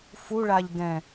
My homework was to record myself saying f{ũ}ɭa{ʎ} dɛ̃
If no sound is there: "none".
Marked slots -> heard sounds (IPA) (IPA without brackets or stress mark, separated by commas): u, ʎ